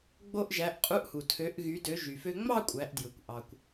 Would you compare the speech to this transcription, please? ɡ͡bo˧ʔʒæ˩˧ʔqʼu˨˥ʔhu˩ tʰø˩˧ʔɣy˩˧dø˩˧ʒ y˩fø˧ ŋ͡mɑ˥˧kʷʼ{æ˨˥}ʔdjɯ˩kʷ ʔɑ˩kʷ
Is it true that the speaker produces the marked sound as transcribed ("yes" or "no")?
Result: no